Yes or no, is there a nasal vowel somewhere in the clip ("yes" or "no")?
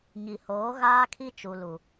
no